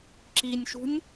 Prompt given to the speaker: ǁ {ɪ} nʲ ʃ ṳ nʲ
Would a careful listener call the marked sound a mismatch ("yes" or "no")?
yes